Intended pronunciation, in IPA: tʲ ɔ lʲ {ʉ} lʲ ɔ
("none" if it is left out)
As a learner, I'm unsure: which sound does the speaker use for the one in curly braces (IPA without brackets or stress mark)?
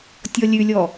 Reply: ʉ